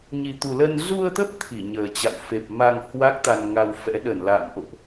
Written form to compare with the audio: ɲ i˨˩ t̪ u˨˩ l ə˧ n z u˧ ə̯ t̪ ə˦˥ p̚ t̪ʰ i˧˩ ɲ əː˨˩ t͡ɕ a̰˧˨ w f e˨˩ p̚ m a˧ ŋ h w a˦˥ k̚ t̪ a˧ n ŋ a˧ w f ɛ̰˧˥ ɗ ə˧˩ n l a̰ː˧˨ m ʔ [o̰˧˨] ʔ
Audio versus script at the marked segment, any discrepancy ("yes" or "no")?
no